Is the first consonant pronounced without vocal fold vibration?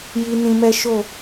no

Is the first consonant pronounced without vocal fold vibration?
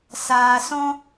yes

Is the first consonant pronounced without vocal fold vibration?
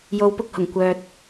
no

